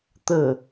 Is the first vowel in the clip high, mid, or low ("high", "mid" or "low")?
mid